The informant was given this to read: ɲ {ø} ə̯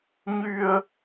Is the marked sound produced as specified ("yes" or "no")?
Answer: no